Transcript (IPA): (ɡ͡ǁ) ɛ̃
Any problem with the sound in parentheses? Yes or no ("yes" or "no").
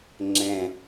yes